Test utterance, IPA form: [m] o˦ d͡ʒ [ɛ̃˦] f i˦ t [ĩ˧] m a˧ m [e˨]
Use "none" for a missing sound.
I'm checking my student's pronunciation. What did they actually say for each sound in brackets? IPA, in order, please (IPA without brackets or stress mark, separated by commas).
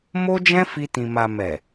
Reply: m, ɛ̃˦, ĩ˧, ɛ˨